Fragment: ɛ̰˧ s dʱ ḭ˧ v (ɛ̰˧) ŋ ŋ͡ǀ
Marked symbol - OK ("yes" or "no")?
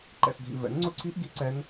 no